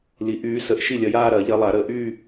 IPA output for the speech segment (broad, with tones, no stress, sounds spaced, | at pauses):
l i˨˩˦ ʔ yː˨˦ s ə˨˦ ʔ ʃ i˥˩ lʲ ɐ˨˦ j aː˥˧ ɾ ɐ˨˩˦ ʎ ɐ˨˦ lˠ a˨˩˦ ɾ ə˨˩˦ ʔ y˥˧